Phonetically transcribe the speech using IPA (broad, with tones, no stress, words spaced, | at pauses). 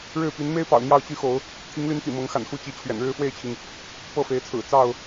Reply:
ɻɻ̩˥˨ py˨˦nme˦ɪ̯pɑ̰˨˩ʊ̯ n̪jɑ˥˨ʊ̯t͡ɕy˦xo˨˦ʊ̯ | t̪ʰi˨˦ŋly˨˦n t̪ḭ˨˩mɤ˨˦ŋxa̰˨˩n xu˥˨t͡ɕi˨˦t͡ɕʰɥɛ̰˨˩n ɻɻ̩˥˨fwe˥˨ɪ̯t͡ɕʰi˩ŋ | pɤ˥˨fe˨˦ɪ̯t͡sʰɹ̩˨˩ t͡sɑ˥˨ʊ̯